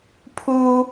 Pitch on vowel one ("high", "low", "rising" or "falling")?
high